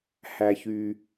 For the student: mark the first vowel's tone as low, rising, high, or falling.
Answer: low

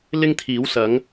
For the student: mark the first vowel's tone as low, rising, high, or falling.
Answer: high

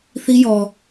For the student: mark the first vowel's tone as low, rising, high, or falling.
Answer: high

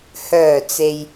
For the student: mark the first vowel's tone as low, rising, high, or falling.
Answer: low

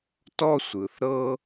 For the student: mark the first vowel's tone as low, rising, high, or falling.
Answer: high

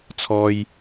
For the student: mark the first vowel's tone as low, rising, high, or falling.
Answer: low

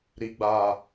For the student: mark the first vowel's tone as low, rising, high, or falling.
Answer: low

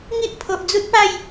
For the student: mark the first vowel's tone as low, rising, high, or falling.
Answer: high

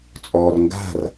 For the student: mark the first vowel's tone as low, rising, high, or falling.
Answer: low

